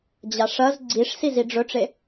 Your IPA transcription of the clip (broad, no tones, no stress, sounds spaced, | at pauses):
d͡ʑ a ʂ ɐ z ɡ͡ǀ i ʂ s i z i ɖ͡ʐ ɵ ʈ͡ʂ e